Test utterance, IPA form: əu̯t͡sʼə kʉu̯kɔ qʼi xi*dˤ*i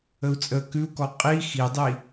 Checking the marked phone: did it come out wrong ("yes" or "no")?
no